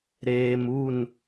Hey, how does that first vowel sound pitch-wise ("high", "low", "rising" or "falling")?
low